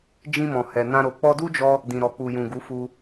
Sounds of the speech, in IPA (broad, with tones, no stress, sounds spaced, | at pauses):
d͡ʒ ĩ˧ m ɔ̃˨ h ɛ˨ n ã˧ ɾ o˨ k͡p ɔ˧ d u˦ d͡ʒ ɔ˦ | d ĩ˨ ɾ ɔ˨ k͡p u˨ j ũ˨ ɡ u˨˦ f u˧